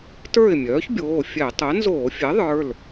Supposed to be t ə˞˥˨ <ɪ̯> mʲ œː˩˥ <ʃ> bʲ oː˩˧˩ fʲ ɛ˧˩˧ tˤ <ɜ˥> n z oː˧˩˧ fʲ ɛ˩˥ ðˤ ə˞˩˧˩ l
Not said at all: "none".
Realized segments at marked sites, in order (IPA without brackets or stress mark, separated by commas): ɪ̯, ç, ɜ˩˥